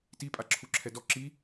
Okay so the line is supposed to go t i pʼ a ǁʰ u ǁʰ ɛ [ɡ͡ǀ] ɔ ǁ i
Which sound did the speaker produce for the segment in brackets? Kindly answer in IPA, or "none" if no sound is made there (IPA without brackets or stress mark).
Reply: d